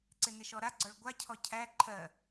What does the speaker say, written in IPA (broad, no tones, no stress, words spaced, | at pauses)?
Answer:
ǀɪnɪʃɔɾa ɡ͡ǀɔɭɡʷacʰɔ cʰæ ǃʰɜ